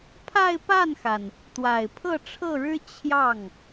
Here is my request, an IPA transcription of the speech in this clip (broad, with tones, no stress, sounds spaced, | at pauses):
pʰ a˥˧ ɪ̯ p a˥˩ n x a˩ n | t̪ w a˨˩ ɪ̯ pʰ ɤ˥˧ ʈ͡ʂʰ ɤ˥˩ ɻ ɻ̩˥ t͡ɕʰ j ɑ˥˩ ŋ